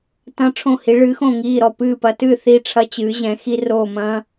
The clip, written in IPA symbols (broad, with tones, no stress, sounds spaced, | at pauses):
t ɐ̃˧ ʈ͡ʂʰ õ˧˩ h i˩˧ ɭ ɨː˩˧ x õ˧˩ ŋ iː˧˩ ɾ ɔ˧˩ p ɨː˧˩ p ɐ˩˧ t ɨ˧˩ θ i˧˩ ʈ͡ʂʰ ɐ˧ t͡ɕ ɨː˩˧ ʑ ɛ̃˩˧ x i˧ r oː˧˩ m ɐ̃ː˧